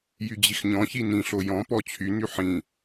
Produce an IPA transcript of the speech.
j y d͡ʑ i x ɲ ɔ̃ ç i n ĩ ɬ o j ɔ̃ p ɔ t͡ɕʰ y n y ħ ĩ

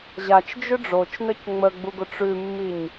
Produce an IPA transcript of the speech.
ʑ a t͡ʃ d͡ʒ ʏ ɖ͡ʐ o t͡ʃ n ə c ŋ͡m ə ɡ͡b u ɡ ʊ ʈ͡ʂ ʉ mː i ɲ

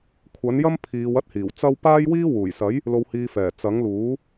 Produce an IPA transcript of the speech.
kʷʰ ɐ˨˥ n j ɐ˥ m pʰ iː˨˧ w ɐ˥ t̚ h iː˨˩ w t͡s ɐ˥ w p aː˥ j w iː˥ w uː˨˩ j s ɐ˨˥ j | l o˧ w h iː˧ f ɛː˨˩ t͡s ɐ˨˥ ŋ l uː˨˥

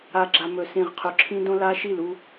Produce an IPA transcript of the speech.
a˨ ɡ͡ǁ a˨ m ɵ˨ s ĩ˨ ʁ qʰ ɵ˨ ǁʰ ĩ˦ d õ˦ l a˦ ʃ i˦˨ l u˦

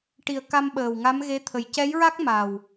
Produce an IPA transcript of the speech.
ʈ i˨˩ ə̯ k a˧ m ɓ əː˨˩ w ŋ a˧˥ m ɣ e˧˥ t̪ʰ ə˨˩ j c ɛ˧˥ j ɹ a˦˥ k̚ m a˨˩ w

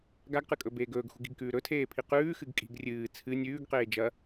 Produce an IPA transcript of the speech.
ɡ a ɡ q ɨ kʼ ɵ b eː ɡ ɵː ɡ x ṳ ɡ i̤ ɡ k ʉː ɾ ɵ tʰ eː pʰ i q ʉː x ɨ ɡ kʼ i̤ ɡ rʲ ɨː t͡sʰ ɨ nʲ ʉː ɡ q eː d͡ʒ ɐ

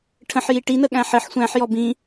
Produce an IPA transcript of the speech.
ʈʰ ə̃ ħ j i ʈ i n ə ɠ æ̃ ħ ɘ ħ sʷ æ̃ ħ j ɔ b ĩ

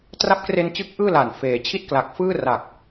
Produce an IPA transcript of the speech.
t r a˦˥ p̚ k r e˧ n t͡ɕ ɯ˦˥ k̚ ʔ ɯː˥˩ l a˨˩ n f eː˩˦ t͡ɕʰ i˥˩ t̚ k l a˨˩ k̚ f ɯː˥˩ r a˨˩ k̚

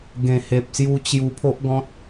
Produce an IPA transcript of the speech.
ɡ ẽ˨˩ h e˨ p̚ s j u˧ t͡ɕ j u˧ pʰ o˦ ʔ ɡ ɔ̃˦ t̚

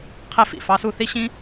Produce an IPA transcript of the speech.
qʰ e˥ f ḭ˩ f ɑ˥ s u˥ θ i˥ ɕ ĩ˥

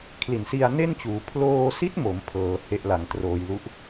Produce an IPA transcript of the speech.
kʰ l i˨˩ n s i˧ a̯ n e˥˩ n t͡ɕ uː˩˦ pʰ l oː˧ s i˦˥ t̚ m o˩˦ m pʰ ɤː˩˦ h e˦˥ ʔ l a˩˦ ŋ t r oː˧ j l u˥˩ ʔ

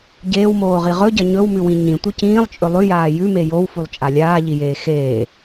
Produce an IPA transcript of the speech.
ɟ eː w m oː ʁ i ʁ ɵ ɟ ɐ ɲ ɵ w m ʉ w ĩ ɲ ĩ tʷ ɨ c ĩː lˠ t͡ʃʼ ɵ lˠ ʉ j aː j ʉ m e j o w f u lˠ t͡ʃʼ a lʲ aː ʎ i j eː x eː

